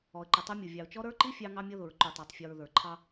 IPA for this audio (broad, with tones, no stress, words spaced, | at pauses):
ɔ˨ə̯ǃə˨tˤʊ˦mʲu˨ vʲɑ˨ʊ̯t͡ʃɔ˦ ɾə˞˦ǃi˦ fʲɑ˦ŋɑ˦mʲʌ˦ ðʊ˨ɹ ǃu˨tˤə˞˨tˤfʲɔ˨ɹ ðə˞˨ǃʰɑ˦